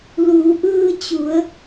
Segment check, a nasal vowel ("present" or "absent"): absent